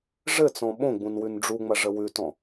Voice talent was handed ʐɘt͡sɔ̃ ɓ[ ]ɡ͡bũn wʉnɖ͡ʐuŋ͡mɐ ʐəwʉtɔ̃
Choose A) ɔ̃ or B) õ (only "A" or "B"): B